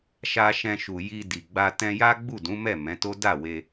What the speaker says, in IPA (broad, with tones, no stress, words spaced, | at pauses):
ʃa˧ ʃɛ̃˧ʃu˨ ji˧di˨ɡ͡ba˧ tɛ̃˧ja˦ ɡ͡bu˦˨dũ˨˦mɛ˦˨ mɛ̃˨˦to˦ da˦˨we˧